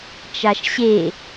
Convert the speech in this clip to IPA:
t͡ʃaʃɕe

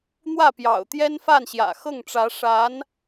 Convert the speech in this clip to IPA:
n̪wä˥˩pjɑ̰˨˩ʊ̯t̪jɛ˥nfa˥˩n ɕjä̰˨˩xɤ˥˩ŋʈ͡ʂä˧˥ ʂa˧˥n

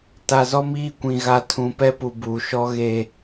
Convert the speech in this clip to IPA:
ta˨zɔ˦miː˦˨kʷĩ˨ ɣa˨ tʰũ˨pɛ˦pu˨ buː˨ʃɔ˦ ɣe˦

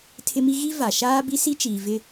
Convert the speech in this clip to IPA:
tʰɪ˦mi˦ ɣi˦ va˨ ʃaː˦ bi˦si˦t͡ʃiː˨vɪ˦

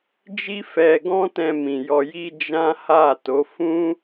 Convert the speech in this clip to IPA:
d͡ʒi˦fɛ˧ɡɔ̃˦tɛ̃˧ mĩ˨jɔ˧ ji˧ d͡ʒã˦ha˦˨to˨˦ fũ˦

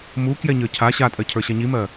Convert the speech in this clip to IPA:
mu kjɛɲə˞cʰa ɕatʼɜ cʰə˞ɕaɲimɜ

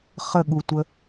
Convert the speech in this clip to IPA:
χəɠutʷə

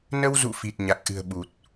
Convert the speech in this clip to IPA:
nə˧wzṵ˧˨ fi˨˩t̚ɲa˨˩k̚ʔɨ̤˨˩ə̯ ɓu˨˩t̚

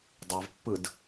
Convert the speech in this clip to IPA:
dˤavpːɯd

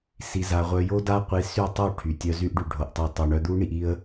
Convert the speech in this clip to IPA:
si˧za˧ʁʷœ˧ jo˦da˦ qʷi˧sy˦˨tˤu˦˨ ʈʰy˨tʲœ˧ zy˧ʔɖy˨ɖʱo˨ʔtˤi˨ tˤo˨ ɳœ˧d̪u˦ɳi˧ʔi˦ə̯

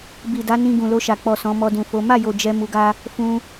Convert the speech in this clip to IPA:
bi˨da˨˦ nĩ˧ɡũ˨lo˧ʃa˨ k͡pɔ˨sɔ̃˨˦ mɔ˧dũ˨fo˨˦ ma˦˨jo˨ d͡ʒɛ˧ mu˧ɡa˦ | fũ˧

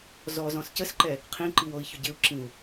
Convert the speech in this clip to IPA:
zɔzɔ̃s cəsǃɛ | qʰĩǃiwoi̯çʊ ɟɪu̯ǁĩu̯

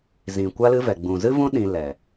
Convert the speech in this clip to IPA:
zĩ˨kʷa˦lɨ˦vɛ˨ ɡ͡bũ˨zɨ˦vũ˦ ɗĩ˧lɛ˨

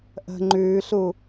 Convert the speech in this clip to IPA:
ʔə̤ ŋ͡ǃʉːɬu

